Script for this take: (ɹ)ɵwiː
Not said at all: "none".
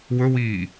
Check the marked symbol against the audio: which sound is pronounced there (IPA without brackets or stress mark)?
w